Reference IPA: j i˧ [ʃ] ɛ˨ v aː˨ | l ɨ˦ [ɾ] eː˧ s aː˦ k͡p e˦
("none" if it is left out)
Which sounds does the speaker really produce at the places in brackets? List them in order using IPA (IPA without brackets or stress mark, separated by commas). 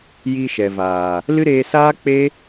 ʃ, ɾ